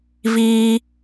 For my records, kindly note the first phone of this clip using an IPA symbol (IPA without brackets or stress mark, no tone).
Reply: v